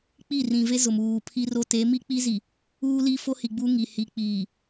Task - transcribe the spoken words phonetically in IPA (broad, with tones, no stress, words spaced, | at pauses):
k͡pi˦˨rĩ˨ve˦zʊ˨m uː˨ pʰi˦ro˦ te˨˦mi˦k͡pi˦zi˨ | uː˦li˦ fo˦hi˨ɡ͡bu˦ ŋi˨hi˨k͡piː˨